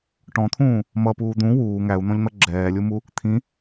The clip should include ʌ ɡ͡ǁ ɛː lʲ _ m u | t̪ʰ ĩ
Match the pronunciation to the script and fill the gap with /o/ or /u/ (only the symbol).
u